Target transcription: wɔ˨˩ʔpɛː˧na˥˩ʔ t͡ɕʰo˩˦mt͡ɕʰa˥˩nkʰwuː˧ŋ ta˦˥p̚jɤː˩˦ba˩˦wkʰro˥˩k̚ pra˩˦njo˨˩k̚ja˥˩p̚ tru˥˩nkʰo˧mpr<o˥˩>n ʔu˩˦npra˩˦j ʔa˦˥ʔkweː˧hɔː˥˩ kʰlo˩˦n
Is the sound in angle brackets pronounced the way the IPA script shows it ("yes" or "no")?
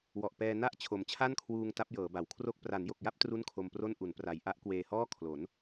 yes